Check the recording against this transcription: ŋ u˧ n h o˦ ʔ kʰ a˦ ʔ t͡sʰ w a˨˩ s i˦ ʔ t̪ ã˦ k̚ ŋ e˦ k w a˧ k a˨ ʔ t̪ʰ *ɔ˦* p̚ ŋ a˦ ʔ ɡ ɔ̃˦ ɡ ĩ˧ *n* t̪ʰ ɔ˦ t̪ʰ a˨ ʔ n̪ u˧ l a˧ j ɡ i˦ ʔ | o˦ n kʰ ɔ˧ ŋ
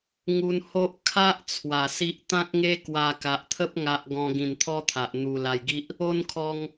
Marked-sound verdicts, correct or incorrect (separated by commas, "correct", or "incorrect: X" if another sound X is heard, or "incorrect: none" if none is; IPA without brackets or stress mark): incorrect: ə˦, correct